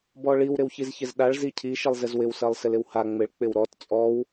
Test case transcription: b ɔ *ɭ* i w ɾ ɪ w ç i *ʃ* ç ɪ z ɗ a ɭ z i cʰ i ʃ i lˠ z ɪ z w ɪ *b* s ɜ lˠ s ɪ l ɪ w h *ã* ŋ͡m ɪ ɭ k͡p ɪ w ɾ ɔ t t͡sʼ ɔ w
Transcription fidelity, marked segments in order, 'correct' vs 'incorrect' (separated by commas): correct, incorrect, incorrect, incorrect